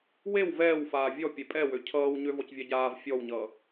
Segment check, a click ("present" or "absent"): absent